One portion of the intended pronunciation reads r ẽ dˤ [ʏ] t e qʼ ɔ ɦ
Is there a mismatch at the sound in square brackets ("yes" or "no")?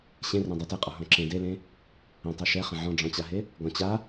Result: yes